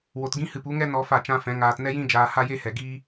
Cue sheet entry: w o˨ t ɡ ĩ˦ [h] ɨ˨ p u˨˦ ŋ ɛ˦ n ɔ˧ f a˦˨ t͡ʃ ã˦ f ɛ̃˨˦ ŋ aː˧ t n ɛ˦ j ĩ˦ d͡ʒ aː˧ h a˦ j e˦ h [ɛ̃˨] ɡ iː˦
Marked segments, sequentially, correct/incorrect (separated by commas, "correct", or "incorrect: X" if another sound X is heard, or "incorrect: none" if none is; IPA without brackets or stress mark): correct, incorrect: ɛ˨